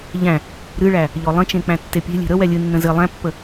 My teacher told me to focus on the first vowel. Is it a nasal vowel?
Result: yes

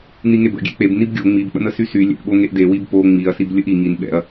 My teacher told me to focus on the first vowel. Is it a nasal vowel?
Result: no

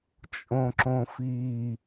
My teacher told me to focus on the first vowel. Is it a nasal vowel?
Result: yes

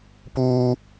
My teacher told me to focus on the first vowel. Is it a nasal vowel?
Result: no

